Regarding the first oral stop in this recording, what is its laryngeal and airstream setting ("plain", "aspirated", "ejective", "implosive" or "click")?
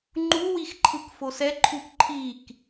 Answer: click